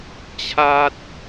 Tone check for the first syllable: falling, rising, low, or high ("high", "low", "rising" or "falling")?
high